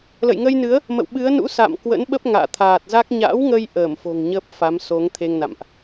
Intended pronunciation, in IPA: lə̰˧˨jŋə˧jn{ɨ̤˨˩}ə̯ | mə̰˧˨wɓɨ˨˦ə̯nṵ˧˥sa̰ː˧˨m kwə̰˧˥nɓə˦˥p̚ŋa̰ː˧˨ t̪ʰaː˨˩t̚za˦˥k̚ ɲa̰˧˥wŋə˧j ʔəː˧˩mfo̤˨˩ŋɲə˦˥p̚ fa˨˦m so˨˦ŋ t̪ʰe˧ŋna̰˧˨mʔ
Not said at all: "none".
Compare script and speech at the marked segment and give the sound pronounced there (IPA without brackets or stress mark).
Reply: ɨ˨˦